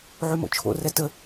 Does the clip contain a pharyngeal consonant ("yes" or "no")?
yes